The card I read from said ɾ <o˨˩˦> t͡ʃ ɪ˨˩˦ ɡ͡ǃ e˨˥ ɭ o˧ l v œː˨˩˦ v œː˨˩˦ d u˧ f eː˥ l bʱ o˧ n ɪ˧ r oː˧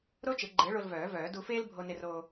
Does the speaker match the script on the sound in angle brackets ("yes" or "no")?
no